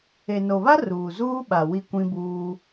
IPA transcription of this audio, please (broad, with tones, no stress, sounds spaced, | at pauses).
e˨ n o˨ β a˦ r uː˨ z uː˦ ɓ a˨ w i˦ kʷ ĩ˦ b uː˦